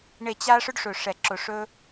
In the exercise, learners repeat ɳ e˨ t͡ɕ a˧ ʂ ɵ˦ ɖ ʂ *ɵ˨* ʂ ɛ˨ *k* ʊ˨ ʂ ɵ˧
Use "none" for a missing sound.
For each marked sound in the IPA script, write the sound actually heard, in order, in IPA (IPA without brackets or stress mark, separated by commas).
ɵ˨, ǁ